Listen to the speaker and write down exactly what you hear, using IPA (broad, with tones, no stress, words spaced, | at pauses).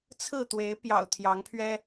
t͡sʰɹ̩˥˨t̪we˨˦ɪ̯ pjɑ̰˨˩ʊ̯ t̪ʰjɑ˨˦ŋpʰɥɛ˦